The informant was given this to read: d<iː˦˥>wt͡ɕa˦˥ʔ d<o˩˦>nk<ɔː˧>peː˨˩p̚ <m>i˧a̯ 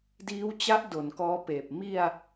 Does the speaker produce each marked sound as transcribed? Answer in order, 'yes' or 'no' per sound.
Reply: yes, yes, no, yes

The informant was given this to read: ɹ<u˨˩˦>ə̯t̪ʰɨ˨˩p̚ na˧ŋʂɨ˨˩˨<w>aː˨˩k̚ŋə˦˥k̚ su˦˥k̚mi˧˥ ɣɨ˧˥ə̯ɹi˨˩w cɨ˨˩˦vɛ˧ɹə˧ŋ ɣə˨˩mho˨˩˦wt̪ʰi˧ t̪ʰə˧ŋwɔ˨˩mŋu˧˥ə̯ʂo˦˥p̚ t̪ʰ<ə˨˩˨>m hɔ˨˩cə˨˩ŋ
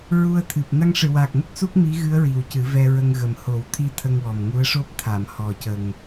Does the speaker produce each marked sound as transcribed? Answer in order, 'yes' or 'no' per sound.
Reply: no, yes, no

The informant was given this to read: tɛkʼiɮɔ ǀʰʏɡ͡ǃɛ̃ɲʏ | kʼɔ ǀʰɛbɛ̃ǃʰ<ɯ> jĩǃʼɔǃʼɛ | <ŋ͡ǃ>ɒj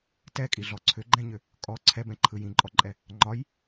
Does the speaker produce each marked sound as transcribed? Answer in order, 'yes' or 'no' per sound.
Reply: yes, yes

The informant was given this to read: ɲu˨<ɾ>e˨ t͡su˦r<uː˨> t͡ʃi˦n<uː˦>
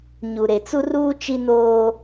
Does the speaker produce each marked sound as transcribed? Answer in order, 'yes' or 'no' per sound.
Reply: yes, no, no

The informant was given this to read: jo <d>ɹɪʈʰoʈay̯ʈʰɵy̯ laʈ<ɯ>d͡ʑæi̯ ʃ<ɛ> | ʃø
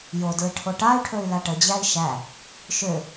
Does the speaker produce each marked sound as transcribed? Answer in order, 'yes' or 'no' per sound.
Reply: yes, no, no

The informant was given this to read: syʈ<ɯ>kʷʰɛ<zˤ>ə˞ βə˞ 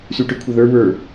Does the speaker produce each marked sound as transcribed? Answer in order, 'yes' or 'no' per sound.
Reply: yes, no

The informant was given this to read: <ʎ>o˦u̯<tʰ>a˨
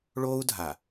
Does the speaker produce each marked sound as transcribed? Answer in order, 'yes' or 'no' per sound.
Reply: no, no

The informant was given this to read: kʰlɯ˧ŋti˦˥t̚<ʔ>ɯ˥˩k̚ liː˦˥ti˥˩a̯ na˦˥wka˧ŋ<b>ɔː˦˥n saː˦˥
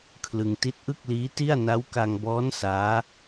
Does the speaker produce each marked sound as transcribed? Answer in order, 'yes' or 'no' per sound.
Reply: yes, yes

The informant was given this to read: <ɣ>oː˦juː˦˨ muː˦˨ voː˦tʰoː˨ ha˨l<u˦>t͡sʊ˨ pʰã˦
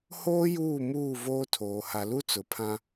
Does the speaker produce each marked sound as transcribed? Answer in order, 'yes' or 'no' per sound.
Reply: no, yes

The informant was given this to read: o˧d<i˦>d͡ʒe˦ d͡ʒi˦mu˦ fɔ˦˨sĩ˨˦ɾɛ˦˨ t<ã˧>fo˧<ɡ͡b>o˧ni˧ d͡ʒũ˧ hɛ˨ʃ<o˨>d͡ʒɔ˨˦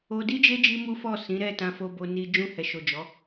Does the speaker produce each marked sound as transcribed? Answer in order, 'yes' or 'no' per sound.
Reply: yes, yes, no, yes

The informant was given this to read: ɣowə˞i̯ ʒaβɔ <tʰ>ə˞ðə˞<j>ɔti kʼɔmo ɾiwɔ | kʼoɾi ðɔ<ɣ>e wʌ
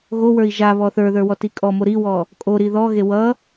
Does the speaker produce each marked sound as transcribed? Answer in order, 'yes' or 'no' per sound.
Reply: no, no, yes

